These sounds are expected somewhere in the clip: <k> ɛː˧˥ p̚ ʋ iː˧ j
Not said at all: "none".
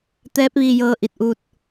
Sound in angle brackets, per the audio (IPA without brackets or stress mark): t̪